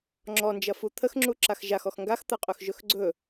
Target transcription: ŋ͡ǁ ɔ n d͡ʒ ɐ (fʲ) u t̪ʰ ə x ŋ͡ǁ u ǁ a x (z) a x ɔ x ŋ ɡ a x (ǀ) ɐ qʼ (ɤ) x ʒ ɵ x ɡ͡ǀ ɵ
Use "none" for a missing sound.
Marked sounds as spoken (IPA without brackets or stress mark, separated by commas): f, ʒ, t̪, ɵ